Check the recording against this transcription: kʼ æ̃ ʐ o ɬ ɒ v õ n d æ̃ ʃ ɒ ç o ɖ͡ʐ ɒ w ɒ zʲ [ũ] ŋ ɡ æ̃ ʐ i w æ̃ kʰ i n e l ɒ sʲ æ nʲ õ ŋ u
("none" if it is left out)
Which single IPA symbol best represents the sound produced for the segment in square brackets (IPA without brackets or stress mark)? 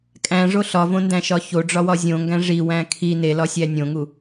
õ